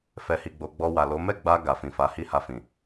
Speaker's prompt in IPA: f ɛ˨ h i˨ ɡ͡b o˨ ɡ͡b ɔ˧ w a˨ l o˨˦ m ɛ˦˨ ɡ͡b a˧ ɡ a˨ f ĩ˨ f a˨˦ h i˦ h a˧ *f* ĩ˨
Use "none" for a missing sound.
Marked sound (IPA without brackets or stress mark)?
f